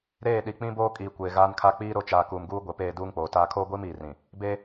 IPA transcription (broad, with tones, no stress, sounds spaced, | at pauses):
ɾ eː˦˨ ɗ i˨ k͡p ĩ˦ b oː˦ kʼ iː˨ kʷ eː˨ ɣ aː˦ n kʰ a˦ k͡p iː˦ ɾ o˦˨ t͡ʃ aː˨ k uː˨ m ɡ uː˦ ɡʷ e˨ p eː˦˨ d uː˦ ŋ k͡p oː˨ t aː˦ kʰ oː˦ ɡʷ iː˦ m iː˨ r ĩ˨ | b eː˦